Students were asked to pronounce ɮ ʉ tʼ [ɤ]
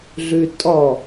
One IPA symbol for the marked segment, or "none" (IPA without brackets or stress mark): ɔ